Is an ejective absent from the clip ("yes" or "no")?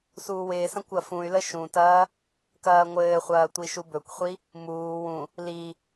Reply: yes